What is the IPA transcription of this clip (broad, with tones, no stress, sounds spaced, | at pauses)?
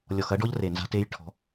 lʲ ɔ˨ x ɐ˦ ɖ ɔ˦ ʎ r e˨ n z a̤˦ t e˦ j ʈʰ ɔ̤˨˦